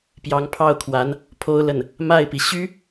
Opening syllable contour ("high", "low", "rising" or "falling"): rising